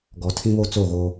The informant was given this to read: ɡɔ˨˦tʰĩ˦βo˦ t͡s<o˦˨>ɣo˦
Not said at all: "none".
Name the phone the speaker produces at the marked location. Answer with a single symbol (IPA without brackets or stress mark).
o˦˨